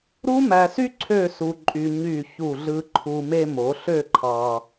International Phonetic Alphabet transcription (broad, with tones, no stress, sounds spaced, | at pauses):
ɾ u˥ m æ˧ s y˥ ǀʰ ø˥˧ s u˧ ǃʼ y˧ ɲ y˧˩ ç u˧˩ ɮ ɯ˧ ǃʰ u˧ m e˧ m o˩˧ ɬ ø˥˧ ǃʰ ɑ˧